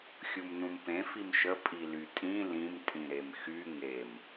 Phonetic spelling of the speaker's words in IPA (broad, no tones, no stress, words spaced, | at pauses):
xʲumnũmpẽ fimʃə pʼilytʼĩ lĩm tʼĩɾemxy ŋem